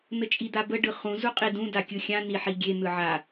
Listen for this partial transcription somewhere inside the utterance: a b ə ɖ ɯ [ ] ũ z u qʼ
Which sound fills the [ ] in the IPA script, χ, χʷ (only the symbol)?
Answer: χ